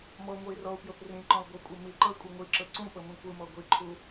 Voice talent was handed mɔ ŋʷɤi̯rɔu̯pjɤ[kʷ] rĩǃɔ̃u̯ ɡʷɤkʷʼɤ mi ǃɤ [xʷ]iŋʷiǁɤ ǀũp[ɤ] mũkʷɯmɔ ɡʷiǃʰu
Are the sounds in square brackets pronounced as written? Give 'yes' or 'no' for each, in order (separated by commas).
no, no, yes